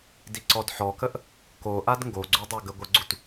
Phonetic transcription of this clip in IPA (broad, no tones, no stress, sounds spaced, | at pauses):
d i ǀ ɔ d ħ ɔ k ə ʔ | k o ʔ a d ŋ ɡ o ɡ͡ǀ u dˤ o ɡ ə ɡʷ ə ɡ͡ǀ u t